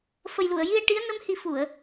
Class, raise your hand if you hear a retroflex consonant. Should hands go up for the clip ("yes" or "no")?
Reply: yes